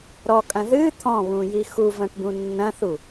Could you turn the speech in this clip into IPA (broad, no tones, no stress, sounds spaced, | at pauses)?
ɾ ɔ kʼ ɐ̃ ð ɨ t̪ʰ ɔ̃ β ũ j i x u v ɐ̃ ʈ b ũ nː ɐ̃ θ u